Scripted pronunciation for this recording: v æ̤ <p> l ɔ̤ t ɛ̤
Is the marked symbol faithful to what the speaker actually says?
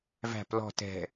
yes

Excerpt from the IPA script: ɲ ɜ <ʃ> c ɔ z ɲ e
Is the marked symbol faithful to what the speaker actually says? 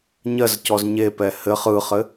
no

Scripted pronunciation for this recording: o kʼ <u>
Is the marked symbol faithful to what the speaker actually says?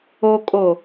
no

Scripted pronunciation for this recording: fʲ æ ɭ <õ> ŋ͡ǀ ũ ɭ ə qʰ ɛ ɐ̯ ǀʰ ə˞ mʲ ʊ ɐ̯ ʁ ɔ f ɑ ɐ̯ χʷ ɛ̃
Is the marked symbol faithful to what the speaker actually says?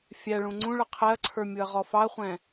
no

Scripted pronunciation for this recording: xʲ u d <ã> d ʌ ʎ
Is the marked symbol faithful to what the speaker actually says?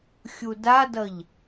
no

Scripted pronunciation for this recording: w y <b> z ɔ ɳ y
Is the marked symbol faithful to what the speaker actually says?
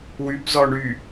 yes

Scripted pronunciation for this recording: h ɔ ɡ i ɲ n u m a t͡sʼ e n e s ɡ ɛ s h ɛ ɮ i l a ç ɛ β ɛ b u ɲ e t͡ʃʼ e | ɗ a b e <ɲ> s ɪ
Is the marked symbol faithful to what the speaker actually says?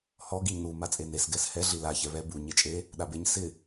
yes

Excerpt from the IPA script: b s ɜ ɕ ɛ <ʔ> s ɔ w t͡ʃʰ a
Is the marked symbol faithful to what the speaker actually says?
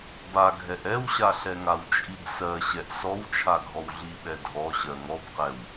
yes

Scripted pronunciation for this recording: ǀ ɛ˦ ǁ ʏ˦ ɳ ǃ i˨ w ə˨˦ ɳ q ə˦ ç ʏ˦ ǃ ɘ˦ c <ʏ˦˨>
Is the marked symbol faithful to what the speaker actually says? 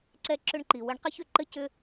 no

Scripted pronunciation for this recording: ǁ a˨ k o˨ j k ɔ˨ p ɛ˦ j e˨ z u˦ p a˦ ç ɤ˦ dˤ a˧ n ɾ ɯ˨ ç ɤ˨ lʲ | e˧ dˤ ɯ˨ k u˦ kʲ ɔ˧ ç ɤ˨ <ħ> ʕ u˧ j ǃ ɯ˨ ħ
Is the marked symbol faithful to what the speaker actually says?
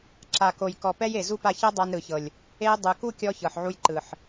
yes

